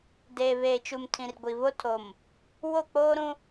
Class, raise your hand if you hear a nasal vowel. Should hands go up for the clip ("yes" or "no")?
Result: yes